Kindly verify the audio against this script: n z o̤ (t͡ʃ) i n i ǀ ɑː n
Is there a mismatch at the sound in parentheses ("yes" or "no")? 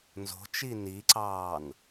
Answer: no